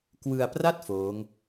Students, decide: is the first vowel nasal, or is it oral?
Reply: oral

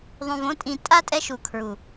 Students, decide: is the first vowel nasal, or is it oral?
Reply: nasal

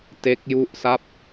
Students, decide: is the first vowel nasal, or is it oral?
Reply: oral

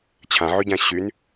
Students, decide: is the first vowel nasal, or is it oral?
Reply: nasal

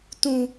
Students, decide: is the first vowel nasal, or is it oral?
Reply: nasal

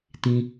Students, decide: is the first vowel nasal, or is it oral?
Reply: nasal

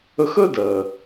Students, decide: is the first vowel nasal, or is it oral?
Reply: oral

